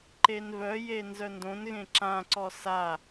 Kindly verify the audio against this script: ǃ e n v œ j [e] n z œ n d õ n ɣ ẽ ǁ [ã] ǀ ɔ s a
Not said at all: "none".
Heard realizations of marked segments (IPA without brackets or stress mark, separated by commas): e, ã